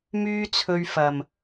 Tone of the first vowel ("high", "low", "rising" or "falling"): high